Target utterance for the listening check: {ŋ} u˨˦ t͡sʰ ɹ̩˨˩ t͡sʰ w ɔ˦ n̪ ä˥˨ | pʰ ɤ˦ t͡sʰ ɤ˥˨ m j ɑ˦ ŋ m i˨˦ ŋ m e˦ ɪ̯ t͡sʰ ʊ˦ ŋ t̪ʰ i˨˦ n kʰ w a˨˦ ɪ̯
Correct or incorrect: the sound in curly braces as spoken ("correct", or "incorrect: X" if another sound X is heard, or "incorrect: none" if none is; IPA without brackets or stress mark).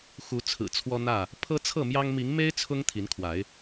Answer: incorrect: x